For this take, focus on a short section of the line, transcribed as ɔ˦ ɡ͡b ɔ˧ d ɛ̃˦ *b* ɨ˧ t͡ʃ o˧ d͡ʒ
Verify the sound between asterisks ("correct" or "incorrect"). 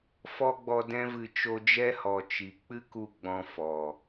incorrect